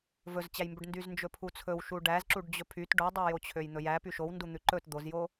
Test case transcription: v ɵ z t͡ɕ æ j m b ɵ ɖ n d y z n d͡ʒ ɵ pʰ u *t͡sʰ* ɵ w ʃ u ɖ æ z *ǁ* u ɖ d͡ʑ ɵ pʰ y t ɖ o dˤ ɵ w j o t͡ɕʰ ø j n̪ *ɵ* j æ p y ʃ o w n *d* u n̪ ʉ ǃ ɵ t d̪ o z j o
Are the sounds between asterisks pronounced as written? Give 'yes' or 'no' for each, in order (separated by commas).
yes, yes, yes, yes